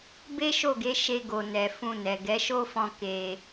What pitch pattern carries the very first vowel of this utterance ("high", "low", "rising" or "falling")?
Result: high